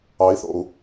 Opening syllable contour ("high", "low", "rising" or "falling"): rising